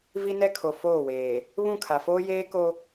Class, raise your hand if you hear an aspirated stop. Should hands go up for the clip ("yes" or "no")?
yes